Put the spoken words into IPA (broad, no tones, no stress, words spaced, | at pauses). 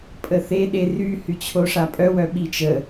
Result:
pʼəθe ɗery hyt͡ɕʰoʂapʼœ wœɓit͡ʃə